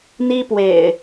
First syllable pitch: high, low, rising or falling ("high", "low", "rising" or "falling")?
high